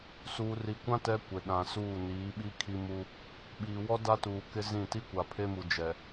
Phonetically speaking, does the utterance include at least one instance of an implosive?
yes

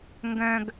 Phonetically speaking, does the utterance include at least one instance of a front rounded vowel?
yes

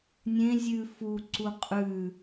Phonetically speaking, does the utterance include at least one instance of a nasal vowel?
yes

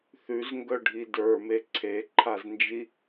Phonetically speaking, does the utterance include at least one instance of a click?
yes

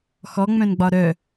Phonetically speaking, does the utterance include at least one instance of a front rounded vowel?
yes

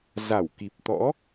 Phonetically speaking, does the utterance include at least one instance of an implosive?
no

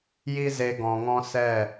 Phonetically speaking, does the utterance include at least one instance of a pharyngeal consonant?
no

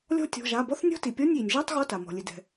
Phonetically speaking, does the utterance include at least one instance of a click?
no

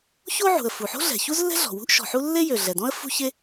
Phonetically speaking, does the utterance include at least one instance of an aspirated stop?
no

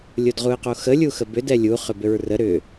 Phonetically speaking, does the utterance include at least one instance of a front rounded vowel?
yes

